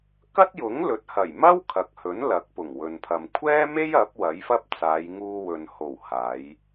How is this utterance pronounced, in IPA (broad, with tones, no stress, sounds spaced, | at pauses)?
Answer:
k ɐ˥ t̚ j ʊ˨˥ ŋ l ɵ˨˥ t̚ h ɐ˨˩ j m ɐ˥ w kʰ ɐ˨ k̚ h ɵ˨˥ n l ɐ˨˥ k̚ p ʊ˨˩ ŋ w ɵ˨ n pʰ ɐ˨ m kʷʰ ɛː˥ m e˥ j ɐ˨˥ p̚ w ɐ˨˥ j f ɐ˥ p̚ t͡s aː˨˧ j ŋ uː˧ w ɵ˨ n h o˨˩ w h aː˨˧ j